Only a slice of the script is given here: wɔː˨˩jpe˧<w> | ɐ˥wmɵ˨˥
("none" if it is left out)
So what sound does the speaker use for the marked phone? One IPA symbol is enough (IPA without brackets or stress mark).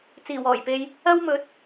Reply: j